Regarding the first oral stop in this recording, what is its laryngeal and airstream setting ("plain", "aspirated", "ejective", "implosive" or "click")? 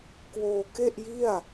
plain